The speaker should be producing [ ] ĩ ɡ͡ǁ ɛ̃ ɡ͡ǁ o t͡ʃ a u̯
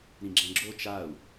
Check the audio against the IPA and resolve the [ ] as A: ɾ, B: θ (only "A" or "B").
A